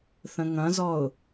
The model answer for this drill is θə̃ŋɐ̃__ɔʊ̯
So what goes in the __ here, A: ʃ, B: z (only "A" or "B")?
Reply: B